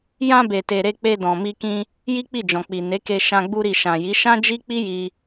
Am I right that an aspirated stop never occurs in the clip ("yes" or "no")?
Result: yes